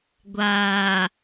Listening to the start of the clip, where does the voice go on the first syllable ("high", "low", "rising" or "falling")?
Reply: low